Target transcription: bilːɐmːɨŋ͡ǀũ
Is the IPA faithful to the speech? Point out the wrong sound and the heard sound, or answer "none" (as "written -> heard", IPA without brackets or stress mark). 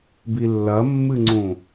none